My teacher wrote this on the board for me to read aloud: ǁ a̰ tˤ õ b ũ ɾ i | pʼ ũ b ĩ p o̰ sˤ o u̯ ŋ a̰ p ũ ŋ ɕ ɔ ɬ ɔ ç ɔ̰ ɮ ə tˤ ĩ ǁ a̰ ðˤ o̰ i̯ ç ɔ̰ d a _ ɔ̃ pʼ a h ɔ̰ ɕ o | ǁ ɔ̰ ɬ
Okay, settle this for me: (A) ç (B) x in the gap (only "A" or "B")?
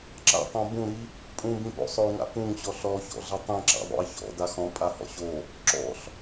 B